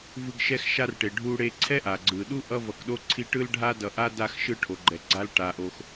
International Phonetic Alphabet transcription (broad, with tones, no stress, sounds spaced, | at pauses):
v ɯ˦ ɡ ʃ ɛ˥ x ʃ a˥ r ʈ e˨ ɖʱ u˦ ɽ e˦ ǀʰ ɛ˥ ʔ a˩ ɡ͡ǀ ɯ˩ ɗ u˥ ʔ ʌ˥ v ʌ˨ k ɗ o˥ ǀʰ i˦ ʈ ɯ˦ l ɖʱ a˦ d ʌ˨ ʔ a˦ d a˦ x ʃ ɯ˦ ʈʰ o˩ ɡ͡ǃ ɛ˩ ɡ͡ǀ a˦ l ʈ a˩ ʔ o˩ x